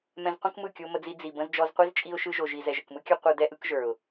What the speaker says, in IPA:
mɛ̃˧z qʷə̃˦kmɯ˦˨ kʲo˧mə˧d͡zi˧ d͡zi˨bə̃˧z d͡ʒɔ˧zqʷi˦z t͡ʃʼi˧ʊ̯ʃɯ˧ʒo˨ʒi˨ zɛ˨ʒə˨kmɯ˦kʲʌ˦ qʷɯ˧dɛ˦ ʔɯ˨˦kʒə˞˨ʊ̯

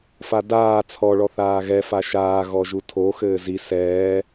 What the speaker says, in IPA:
fadaː t͡sʰɔɭɔ θaːɣɛ faʃaː ɣɔʒutʰo xɘːzi sɛː

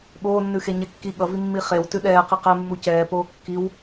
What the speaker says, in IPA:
ɠoːnːʉxe ɲɛkːi ɠʌvi mːiχew tʉɗɛːqi qɛmːu cɛːpoː kːiw

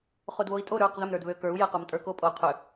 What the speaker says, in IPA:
χodβoi̯tʼo ɾə˞q ðʏm ɾə˞dβøkə˞u̯ jequmtʼə˞ko pʼo qʰʏ

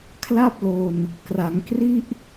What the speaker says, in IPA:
kʰla˥˩p̚lo˧n | kra˩˦ŋkri˥˩ʔ

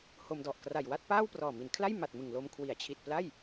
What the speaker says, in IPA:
ho˧mdɔ˨˩ʔ kra˨˩jwa˥˩t̚ paː˥˩wprɔː˨˩mi˩˦nkʰla˥˩j ma˨˩t̚mɯ˨˩ŋlo˧m kʰwi˩˦a̯t͡ɕʰi˨˩t̚pla˥˩j

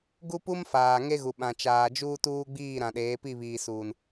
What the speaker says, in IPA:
ɡu˦pu˦m faː˨ŋe˦ɣu˨ɓã˨ t͡ʃaː˨d͡ʒuː˦ tuː˦ɡ͡biː˦˨ ɾã˨ɗeː˨˦pi˦˨ βiː˨suː˨n

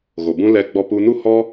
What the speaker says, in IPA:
ɣo˨bũ˧ lɛ˦ɡ͡bɔ˦pu˦ nu˦hɔ˦

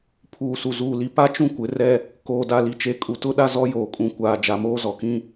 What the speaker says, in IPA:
pʰuː˨su˨zuː˨li˨ pa˦ t͡ʃũ˦kʷɪ˨˦rɛ˦ | koː˨da˨li˨t͡ʃe˨˦ kʼu˨tʊ˦ɗa˦ zɔ˦joː˨kʼũ˨ kʷaː˨d͡ʒa˨ moː˦zɔ˨kĩ˦

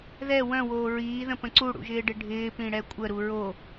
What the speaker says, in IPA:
ðɛ wœ̃woː ɹiːðə̃pə̃ ǀuɽṵʒɪːɖɪ ɖʱɪːpĩɽɛ kʷʼəɾu ɹo

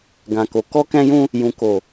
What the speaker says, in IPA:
ɡã˨ko˨ kɔ˧kɛ̃˧jũ˧ | jũ˨ko˨

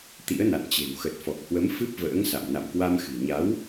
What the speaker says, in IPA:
t̪ḭ˧˥ə̯na̰˧˨nt͡ɕe̤˨˩w xə˨˩t̚fɔ˨˩k̚hwə˨˦m fɨ˦˥p̚və̰ː˧˥ŋsa̰˧˨m na̰˧˨mkwa˧mxɨ̤˨˩ ɲa˨˦w

